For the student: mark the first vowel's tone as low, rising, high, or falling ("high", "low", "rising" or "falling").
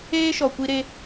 high